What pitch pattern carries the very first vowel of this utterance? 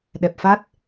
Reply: low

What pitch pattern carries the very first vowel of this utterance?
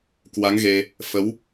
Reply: rising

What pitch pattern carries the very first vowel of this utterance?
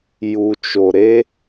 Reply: low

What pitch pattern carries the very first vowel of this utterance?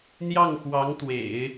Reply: falling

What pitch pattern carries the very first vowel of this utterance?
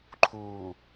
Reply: low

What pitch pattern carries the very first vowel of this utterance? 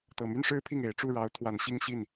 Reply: low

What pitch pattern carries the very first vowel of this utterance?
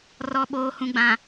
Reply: low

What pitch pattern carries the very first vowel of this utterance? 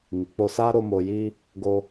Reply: low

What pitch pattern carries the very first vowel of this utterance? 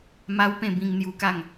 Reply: high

